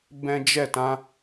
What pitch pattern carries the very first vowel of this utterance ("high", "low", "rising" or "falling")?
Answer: high